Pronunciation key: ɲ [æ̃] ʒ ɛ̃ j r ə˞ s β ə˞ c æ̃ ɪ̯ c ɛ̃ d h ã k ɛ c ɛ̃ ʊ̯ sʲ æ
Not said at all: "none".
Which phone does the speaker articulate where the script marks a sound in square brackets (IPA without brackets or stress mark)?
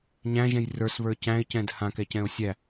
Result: æ̃